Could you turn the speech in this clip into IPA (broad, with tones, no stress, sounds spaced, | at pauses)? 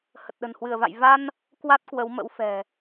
h ə˨˩ t̚ ɗ ə̤˨˩ n h w ɨ˧˩ ə̯ v a̰˧˨ j v a˧ n | k w a˦˥ t̚ k w ə˨˦ w m ə̰˧˥ w f ɛ̤˨˩